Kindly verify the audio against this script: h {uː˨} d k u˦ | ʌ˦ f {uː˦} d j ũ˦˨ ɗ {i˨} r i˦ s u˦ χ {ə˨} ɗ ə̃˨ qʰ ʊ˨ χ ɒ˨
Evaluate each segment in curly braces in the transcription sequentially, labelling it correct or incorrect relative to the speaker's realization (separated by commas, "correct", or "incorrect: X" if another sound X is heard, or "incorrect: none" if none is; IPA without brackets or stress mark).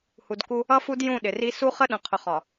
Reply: incorrect: u˨, incorrect: u˦, incorrect: ɪ˨, incorrect: ə˦